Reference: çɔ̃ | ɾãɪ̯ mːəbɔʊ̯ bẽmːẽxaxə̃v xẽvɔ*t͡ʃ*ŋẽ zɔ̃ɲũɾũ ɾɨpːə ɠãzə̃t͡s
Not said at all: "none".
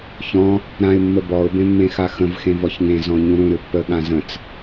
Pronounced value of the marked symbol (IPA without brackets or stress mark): ç